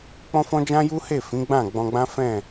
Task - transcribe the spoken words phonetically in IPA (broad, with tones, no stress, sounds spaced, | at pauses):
k͡p ɔ̃˦ f ɔ̃˦ d͡ʒ ã˦ j u˦ h e˦˨ f ĩ˨˦ ɡ͡b ã˦˨ ɡ͡b ɔ̃˧ ɡ͡b ã˦ f ɛ̃˦˨